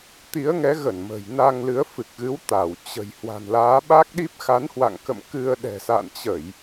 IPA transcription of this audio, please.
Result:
t̪ i˨˦ ə̯ ŋ ɛ˨˦ ɣ ə˧˩ n m ə̤˨˩ j n a˧ ŋ l ɨ˨˦ ə̯ f ɨ˨˩ k̚ ɣ ɨ˨˦ w t̪ a˧˩ w t͡ɕ ə̤˨˩ j h w a̤˨˩ n l aː˨˦ ɓ a˦˥ k̚ ɗ i˦˥ p̚ x a˨˦ n h w a̰˧˨ ŋ k ə̰˧˨ m k ɨ˧ ə̯ ɗ ɛ̤˨˩ s a̰˧˨ n t͡ɕ ə˧˩˨ j

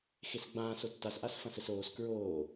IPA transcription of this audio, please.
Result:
x e s ɡ͡b ãː s o tː a s ʔ a s f ɐ̃ s ɘ s oː s k ɹ oː

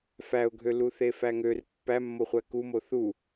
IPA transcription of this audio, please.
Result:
f æ ʊ̯ ɡʱ ø l u θ e f æ ŋ ø r pː æ mː o χʷ æ k u m o θ u

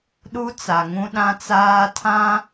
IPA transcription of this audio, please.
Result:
ɗ u˦ t͡s a˨ ŋ ũ˦ ɗ ã˦ t͡s aː˦ tʰ ã˦

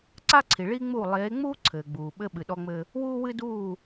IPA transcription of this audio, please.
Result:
ǀ a˦ ǀʰ i˨ ɭ iː˦ ŋ͡m uː˦˨ lˠ eː˨˦ ŋ͡m uː˦ ǀʰ ɘː˨ ɡ͡b uː˨ ɓ ɘ˦ ɓ ɨ˨ ɗ ɔ˦ ŋ͡m ɘ˦ | w uː˦ w ɨ˦ d uː˦˨

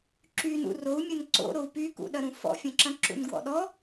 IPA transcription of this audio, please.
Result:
ǁ y n ṵ r o u̯ mʲ ɐ n ǀ o̰ ɾ o u̯ p y k ṵ ɗ ɐ ɾ ũ f ɔ̰ fʲ ɐ̃ ǁ ɐ̃ ǁ ṵ n ɡ w ɔ̰ ɗ ɔ

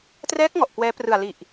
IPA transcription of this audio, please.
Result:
t r ɛː˦˥ k̚ ŋ ɔ˨˩ ʔ k w ɛː˦˥ p r ɯ˨˩ a̯ l i˨˩ ʔ

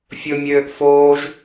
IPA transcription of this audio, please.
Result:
fʲ ʊ mʲ øː ʔ f oː ʒ

